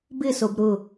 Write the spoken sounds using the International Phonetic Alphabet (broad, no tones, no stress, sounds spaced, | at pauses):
b ɪ s o b ɾ ʊ